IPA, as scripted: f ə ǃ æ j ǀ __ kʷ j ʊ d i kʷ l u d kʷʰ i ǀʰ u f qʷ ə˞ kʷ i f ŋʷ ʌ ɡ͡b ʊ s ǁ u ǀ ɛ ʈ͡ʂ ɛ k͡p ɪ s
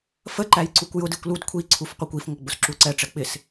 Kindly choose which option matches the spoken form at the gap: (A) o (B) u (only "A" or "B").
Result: B